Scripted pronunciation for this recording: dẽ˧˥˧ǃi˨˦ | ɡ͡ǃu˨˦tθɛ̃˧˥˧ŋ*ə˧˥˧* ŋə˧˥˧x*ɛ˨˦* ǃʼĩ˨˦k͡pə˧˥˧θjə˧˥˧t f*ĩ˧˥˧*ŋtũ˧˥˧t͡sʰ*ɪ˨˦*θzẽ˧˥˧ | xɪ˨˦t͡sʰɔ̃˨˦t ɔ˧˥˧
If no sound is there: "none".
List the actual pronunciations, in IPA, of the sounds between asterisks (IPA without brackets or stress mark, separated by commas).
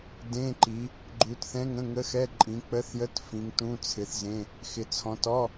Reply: ə̃˧˥˧, ɛ˧˥˧, ĩ˨˦, ɪ˨˦